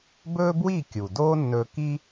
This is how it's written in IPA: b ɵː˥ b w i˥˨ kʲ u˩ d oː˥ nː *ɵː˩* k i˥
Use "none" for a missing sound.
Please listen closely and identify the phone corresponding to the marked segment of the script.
ɵː˧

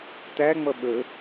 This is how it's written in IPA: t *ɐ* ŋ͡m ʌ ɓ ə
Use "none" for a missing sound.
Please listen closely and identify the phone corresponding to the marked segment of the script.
æ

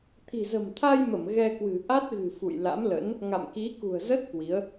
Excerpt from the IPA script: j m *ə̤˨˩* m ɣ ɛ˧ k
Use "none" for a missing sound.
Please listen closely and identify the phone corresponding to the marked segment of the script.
ə˧˩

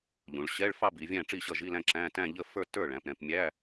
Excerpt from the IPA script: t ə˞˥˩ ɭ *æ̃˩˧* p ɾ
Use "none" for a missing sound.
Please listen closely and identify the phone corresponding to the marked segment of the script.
æ̃˩˧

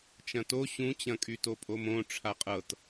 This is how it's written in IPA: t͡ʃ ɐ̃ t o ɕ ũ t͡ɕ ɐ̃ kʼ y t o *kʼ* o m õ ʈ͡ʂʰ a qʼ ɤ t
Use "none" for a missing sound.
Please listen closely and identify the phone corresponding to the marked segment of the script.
pʼ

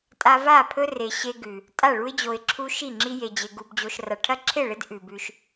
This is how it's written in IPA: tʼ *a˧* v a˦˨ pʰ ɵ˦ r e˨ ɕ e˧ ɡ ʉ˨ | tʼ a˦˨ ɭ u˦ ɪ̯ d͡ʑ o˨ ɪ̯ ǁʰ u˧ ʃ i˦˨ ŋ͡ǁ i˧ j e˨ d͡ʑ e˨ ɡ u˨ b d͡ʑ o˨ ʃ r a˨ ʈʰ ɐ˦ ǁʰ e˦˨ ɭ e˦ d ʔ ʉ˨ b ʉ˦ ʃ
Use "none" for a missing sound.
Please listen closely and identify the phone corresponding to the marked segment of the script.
a˧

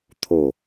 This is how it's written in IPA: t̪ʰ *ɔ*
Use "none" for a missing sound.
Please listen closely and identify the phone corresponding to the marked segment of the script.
o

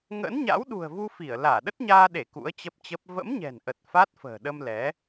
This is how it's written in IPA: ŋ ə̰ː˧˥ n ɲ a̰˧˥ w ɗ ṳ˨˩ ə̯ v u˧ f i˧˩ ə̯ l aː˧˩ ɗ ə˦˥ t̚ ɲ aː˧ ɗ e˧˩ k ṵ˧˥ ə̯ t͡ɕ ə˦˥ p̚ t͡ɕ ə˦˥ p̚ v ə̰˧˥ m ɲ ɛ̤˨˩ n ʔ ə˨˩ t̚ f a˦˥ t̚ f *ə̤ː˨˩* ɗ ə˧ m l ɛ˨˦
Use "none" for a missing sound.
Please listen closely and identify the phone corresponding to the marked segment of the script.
ə̤ː˨˩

